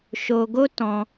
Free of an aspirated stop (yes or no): yes